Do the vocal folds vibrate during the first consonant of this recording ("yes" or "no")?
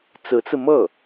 no